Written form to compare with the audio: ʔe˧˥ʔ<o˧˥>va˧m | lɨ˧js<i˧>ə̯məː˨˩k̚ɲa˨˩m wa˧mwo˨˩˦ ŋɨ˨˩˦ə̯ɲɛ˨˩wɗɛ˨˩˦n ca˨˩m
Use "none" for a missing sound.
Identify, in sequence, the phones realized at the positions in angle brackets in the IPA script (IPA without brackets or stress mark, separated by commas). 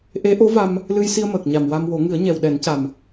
o˧˥, i˧